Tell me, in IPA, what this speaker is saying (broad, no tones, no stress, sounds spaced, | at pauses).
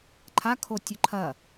ǃʰ a kʰ o tʲ ɵ ǃʰ ɐ